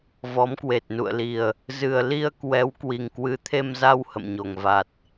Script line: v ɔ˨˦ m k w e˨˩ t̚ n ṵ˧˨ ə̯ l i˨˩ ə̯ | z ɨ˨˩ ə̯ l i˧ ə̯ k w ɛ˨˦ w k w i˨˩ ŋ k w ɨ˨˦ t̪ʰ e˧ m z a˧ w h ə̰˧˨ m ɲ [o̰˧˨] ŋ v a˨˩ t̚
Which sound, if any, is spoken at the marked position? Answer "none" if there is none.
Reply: o˨˩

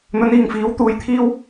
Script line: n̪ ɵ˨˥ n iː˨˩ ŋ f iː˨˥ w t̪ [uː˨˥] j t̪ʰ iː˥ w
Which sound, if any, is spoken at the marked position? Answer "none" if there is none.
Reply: uː˨˧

